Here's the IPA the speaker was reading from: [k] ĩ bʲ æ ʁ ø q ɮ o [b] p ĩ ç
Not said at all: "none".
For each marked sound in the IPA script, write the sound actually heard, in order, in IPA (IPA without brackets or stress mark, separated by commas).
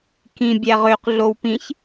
k, w